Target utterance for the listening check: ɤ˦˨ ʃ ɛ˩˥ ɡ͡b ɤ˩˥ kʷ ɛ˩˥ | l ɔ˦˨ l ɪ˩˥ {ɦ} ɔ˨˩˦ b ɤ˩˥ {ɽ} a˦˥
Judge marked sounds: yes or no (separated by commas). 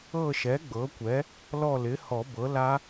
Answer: no, no